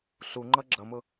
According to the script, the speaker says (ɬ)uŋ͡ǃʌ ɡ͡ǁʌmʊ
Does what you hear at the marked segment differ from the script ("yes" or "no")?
no